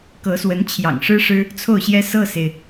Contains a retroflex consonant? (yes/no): yes